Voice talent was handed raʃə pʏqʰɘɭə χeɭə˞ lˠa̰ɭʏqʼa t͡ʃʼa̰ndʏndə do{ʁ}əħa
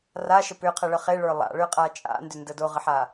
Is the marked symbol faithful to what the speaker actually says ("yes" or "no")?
yes